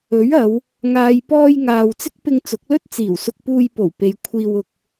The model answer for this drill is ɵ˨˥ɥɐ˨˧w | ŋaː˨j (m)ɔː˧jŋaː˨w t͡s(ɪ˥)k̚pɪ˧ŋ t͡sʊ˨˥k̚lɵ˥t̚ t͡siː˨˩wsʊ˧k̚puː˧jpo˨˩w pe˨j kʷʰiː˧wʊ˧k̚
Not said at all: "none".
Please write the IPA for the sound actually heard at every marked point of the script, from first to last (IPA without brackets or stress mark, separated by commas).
p, ɪ˥